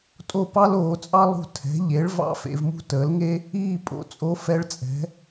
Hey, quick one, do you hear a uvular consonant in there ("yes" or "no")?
no